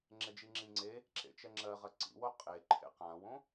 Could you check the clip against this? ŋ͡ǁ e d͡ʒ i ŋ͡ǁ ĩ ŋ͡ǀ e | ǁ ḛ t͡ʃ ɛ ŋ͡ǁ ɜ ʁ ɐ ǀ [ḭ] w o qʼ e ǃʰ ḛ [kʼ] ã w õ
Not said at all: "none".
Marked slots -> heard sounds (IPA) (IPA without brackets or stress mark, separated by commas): ḭ, q